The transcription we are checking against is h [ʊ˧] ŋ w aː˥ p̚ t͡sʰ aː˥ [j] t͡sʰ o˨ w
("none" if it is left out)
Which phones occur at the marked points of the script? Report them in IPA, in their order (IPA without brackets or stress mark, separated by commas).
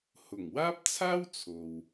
ʊ˨˩, w